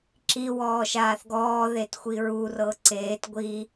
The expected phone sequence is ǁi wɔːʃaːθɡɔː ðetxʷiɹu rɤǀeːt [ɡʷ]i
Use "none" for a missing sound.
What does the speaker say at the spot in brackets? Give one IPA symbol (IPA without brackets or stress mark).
ɡʷ